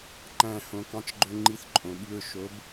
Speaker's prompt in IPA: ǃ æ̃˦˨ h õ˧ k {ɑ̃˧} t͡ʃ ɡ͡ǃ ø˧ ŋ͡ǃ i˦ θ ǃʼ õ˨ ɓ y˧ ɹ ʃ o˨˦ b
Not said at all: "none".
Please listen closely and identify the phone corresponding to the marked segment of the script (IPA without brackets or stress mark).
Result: ɑ̃˧